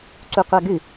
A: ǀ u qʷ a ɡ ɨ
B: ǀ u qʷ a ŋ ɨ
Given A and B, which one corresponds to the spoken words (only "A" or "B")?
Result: A